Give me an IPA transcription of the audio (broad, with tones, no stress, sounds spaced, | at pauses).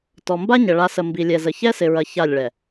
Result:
t ɔ˨ m b a˦ ɲ ə˨ ɭ a˨ s ə˨ m b i˨ lʲ ɛ˨ z ə˨ ç ɛ˦ s ɪ˨ ɹ ɐ˨ ç a˦˨ lʲ ɭ ɛ˨